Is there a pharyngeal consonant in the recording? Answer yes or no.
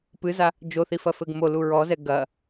no